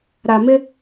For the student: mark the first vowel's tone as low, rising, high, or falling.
low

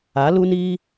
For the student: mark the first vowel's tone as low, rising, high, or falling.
rising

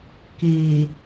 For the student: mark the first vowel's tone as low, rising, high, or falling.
low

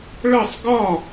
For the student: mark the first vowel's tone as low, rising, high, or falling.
falling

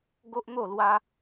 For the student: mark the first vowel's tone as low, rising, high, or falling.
high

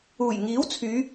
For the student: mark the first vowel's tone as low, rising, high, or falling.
low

